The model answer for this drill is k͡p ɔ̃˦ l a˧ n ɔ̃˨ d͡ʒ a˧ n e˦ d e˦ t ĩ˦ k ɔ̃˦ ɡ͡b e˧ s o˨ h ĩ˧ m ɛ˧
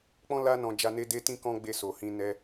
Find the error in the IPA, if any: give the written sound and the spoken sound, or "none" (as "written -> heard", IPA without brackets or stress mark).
m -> n